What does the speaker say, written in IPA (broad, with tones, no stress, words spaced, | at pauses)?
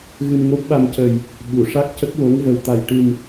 ɣɨ˧mŋo˦˥p̚ɓa˧m cə˨˩j | ɓu˨˩˨ʂa˦˥k̚cə˦˥k̚ wo˧˥ŋvə˨˩wt̪a˨˩j ʈɨ˨˩m